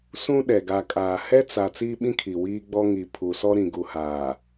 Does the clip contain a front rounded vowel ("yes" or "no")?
no